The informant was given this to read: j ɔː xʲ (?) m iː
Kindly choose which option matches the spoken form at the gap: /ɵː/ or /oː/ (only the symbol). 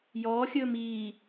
ɵː